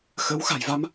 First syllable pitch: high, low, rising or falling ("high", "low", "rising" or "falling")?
rising